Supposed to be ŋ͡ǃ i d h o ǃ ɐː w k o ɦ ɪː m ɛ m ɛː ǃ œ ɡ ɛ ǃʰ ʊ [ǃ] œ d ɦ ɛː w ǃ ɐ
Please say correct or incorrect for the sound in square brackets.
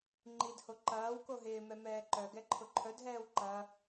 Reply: incorrect